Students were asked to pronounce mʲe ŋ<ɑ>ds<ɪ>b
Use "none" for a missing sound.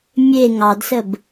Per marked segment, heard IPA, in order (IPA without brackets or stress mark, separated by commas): ɑ, ə